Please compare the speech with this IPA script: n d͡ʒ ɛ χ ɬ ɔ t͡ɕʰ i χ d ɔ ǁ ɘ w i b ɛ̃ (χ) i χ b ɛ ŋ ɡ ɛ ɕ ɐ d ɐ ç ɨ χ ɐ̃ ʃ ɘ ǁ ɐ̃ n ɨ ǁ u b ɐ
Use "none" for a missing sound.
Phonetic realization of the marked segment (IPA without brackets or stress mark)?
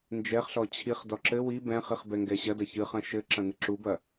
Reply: χ